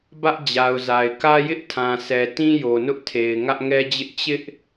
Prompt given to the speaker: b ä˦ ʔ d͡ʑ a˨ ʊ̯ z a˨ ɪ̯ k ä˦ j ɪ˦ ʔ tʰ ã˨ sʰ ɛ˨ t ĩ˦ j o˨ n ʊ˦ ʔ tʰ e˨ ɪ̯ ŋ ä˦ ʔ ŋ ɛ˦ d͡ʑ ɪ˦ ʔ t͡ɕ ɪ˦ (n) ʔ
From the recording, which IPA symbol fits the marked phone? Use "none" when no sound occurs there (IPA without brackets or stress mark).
none